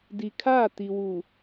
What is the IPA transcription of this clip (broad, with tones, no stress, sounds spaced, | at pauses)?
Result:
d i˨ kʰ aː˦˨ t i˨ w u˨